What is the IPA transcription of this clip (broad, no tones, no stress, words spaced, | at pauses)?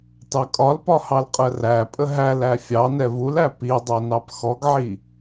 tɑkʼɒlpɒ hɑlqʼɜræpʼə ɦælæ fʲɑnɛ vulæ pidˤɛ nɑpxɔɡʕi